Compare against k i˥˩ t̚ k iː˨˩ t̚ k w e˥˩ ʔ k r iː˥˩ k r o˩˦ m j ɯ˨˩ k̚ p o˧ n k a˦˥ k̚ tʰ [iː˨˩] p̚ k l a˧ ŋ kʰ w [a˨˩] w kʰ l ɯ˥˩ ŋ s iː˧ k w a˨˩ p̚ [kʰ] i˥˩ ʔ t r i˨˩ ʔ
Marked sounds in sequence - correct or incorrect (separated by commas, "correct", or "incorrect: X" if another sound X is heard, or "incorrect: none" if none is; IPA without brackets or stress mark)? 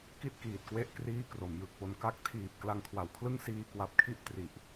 correct, correct, correct